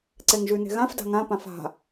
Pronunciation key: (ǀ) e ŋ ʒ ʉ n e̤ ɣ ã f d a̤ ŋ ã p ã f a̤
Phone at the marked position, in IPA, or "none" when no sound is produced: ǀ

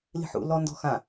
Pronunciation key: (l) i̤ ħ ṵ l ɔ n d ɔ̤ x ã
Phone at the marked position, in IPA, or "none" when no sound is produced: l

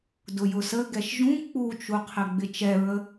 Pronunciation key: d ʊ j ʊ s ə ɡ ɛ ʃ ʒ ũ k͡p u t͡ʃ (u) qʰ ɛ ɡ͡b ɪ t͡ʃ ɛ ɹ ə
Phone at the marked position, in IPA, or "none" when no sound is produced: u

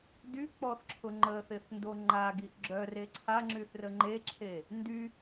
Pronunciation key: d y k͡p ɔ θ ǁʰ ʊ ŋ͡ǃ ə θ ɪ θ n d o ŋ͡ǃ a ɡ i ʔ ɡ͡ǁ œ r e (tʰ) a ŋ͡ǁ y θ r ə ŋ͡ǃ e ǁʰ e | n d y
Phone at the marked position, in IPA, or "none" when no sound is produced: ǀʰ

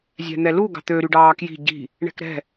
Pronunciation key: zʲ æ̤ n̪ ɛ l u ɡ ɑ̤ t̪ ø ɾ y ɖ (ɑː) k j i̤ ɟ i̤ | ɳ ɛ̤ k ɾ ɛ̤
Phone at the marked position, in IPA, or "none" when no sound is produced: ɑː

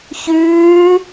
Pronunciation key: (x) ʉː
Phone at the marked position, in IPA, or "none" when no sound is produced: ç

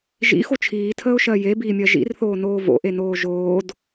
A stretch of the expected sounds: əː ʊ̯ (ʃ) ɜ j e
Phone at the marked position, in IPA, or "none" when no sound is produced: ʃ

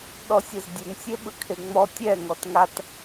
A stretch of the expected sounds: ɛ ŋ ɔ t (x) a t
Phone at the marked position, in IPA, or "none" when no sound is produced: ŋ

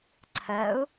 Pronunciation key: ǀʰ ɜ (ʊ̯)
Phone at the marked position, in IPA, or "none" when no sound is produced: ʊ̯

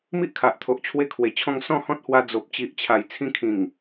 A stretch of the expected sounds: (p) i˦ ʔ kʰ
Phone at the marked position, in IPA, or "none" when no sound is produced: m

